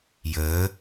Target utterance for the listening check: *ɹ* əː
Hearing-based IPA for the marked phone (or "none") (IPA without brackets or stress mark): j